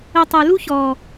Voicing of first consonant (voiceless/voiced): voiceless